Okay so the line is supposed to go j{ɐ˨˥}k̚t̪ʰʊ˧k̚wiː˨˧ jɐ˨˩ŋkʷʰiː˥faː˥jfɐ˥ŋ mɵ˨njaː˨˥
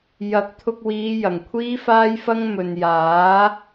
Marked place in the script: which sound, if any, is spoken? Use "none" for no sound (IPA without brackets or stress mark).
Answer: ɐ˨˥